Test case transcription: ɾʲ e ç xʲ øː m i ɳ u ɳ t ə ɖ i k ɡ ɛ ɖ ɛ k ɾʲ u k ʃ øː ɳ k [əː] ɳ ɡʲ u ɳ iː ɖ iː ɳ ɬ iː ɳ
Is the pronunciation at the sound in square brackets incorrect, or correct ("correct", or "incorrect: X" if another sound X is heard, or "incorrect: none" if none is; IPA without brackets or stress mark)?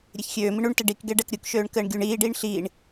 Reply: correct